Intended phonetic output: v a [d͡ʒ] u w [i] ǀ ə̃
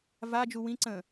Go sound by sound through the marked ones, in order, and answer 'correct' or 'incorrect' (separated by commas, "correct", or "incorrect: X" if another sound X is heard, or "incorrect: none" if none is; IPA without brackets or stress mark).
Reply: correct, incorrect: ĩ